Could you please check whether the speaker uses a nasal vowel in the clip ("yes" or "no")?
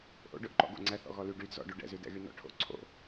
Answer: no